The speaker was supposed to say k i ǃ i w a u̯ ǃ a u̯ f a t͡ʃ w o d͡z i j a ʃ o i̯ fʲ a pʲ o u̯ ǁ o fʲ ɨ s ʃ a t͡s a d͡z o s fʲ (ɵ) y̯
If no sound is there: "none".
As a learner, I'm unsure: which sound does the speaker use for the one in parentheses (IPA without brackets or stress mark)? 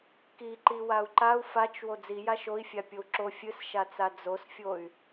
o